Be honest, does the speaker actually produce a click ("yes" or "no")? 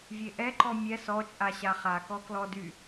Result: yes